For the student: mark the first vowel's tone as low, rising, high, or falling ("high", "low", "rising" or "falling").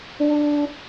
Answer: low